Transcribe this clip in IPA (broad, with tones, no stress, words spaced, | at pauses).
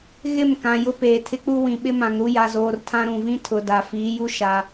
ɣɪ˦˨mkã˨ jʊ˦ peː˨tʰɪ˦k͡pu˦ wĩ˨ɓɪ˦mã˨ŋɾu˦ ja˦zoː˦r tʰã˦ɾũ˨vĩ˦ tʰʊ˨da˨ fiː˨˦ju˦ ʃa˨